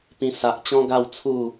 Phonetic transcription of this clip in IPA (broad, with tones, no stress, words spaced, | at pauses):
pĩ˧ sa˨ʔ t͡ɕɔ̃˦ɡa˥˧wt͡sʰu˥˧